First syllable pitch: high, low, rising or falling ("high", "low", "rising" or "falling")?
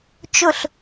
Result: falling